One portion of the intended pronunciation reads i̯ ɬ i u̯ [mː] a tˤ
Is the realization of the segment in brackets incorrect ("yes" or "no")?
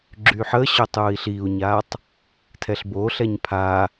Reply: yes